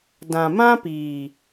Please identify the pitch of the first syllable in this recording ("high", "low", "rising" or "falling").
low